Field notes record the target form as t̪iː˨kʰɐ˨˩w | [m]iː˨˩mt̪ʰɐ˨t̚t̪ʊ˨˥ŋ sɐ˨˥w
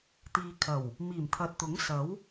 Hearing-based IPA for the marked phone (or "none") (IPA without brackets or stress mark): m